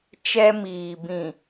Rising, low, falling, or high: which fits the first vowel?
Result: high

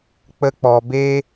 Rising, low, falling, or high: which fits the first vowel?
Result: high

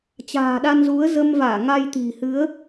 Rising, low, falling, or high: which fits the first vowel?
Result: low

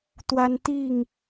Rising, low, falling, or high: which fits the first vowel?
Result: high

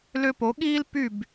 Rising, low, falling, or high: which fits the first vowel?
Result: high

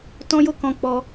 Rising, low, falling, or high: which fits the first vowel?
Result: high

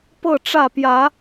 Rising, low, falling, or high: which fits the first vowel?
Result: falling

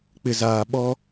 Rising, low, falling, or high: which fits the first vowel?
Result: low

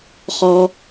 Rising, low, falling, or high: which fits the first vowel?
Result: high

